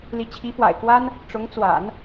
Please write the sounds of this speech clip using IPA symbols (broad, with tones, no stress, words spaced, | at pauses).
li˧˥t͡ɕʰi˧˥fwa̰˨˩ɪ̯kwa˥n | ʈ͡ʂʊ˧˥ŋt͡swa̰˨˩˦n